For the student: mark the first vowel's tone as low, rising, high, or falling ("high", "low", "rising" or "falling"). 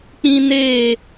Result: high